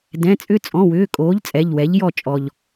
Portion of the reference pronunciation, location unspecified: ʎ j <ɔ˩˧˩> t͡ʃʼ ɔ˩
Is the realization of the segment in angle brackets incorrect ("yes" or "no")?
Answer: yes